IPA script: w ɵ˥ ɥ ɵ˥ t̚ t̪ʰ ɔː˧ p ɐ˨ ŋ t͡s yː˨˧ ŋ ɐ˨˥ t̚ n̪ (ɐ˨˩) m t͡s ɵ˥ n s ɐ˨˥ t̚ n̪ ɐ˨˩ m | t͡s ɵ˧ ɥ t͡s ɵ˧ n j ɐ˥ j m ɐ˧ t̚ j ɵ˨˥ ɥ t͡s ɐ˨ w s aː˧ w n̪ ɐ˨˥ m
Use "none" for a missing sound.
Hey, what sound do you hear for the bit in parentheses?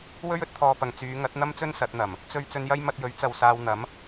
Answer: ɐ˥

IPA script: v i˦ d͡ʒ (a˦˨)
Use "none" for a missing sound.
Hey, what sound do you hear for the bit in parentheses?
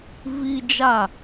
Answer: a˦˨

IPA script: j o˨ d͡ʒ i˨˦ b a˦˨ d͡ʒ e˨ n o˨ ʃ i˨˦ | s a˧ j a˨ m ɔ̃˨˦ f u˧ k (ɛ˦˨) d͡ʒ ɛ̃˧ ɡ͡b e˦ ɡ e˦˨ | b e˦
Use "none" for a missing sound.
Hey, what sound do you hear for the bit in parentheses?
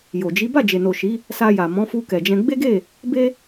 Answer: ɛ˨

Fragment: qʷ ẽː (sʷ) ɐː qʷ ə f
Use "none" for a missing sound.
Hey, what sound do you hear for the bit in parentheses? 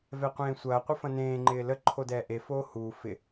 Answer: sʷ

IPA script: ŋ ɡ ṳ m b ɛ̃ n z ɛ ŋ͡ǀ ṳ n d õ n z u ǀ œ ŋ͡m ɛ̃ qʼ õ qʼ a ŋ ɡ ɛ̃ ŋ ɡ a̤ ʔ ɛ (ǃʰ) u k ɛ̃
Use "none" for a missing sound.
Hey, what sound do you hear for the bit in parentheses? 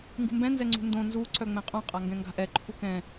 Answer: ǃʰ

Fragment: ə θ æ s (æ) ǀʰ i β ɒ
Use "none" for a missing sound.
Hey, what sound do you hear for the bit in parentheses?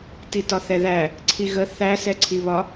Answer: ɛ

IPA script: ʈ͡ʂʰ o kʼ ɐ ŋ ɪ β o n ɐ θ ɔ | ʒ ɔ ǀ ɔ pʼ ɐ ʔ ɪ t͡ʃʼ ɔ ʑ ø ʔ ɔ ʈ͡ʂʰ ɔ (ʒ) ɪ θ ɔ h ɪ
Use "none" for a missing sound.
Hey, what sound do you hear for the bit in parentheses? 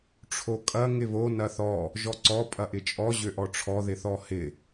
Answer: ð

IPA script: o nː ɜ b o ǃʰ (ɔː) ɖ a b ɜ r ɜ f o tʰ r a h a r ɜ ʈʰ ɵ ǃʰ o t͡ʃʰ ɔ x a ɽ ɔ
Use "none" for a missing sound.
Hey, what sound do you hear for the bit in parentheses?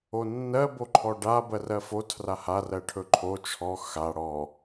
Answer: ɔ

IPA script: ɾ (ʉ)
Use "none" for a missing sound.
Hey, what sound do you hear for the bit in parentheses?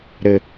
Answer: ɘ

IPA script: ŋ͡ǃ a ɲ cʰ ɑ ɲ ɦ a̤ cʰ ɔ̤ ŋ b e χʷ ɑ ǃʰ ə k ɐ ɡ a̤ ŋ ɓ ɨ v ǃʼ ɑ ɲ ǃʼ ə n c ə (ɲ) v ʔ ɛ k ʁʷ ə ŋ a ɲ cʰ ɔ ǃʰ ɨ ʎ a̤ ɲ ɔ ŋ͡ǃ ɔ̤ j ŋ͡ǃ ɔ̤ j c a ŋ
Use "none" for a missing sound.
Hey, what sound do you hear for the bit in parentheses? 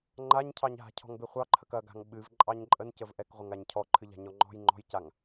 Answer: none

